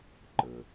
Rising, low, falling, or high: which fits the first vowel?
low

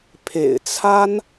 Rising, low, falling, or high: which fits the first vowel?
low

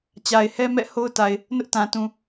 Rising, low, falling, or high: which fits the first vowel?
low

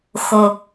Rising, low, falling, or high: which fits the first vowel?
low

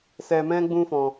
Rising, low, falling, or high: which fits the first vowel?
low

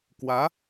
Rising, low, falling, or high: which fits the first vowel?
rising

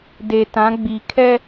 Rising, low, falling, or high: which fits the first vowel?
low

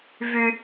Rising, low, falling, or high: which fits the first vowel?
high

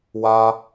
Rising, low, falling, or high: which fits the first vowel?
high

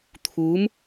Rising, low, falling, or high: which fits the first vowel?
rising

